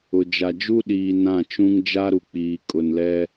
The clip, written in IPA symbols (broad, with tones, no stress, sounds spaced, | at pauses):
ʊ˨ d͡ʒ a˨ d͡ʒ u˦ ɗ iː˨ n ã˦˨ t͡ʃ ũ˦ ŋ d͡ʒ a˦ ɾ u˨ k͡p iː˨ kʼ ʊ˨ n l ɛ˦